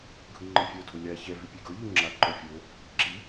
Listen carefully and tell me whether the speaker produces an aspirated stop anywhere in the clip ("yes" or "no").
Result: no